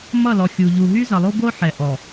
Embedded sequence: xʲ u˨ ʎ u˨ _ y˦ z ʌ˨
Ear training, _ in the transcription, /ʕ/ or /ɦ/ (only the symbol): ɦ